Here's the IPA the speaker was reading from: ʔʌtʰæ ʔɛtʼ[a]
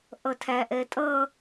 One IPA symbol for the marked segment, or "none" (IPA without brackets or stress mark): ʌ